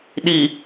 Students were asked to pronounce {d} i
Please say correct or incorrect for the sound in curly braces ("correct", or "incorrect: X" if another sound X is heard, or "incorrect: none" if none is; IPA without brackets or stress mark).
incorrect: ɗ